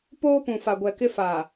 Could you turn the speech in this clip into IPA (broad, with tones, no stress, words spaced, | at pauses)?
poː˦pũ˨fa˨ɡʷɛ˨ kɪ˦fa˨